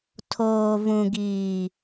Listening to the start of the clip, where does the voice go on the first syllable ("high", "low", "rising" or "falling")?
low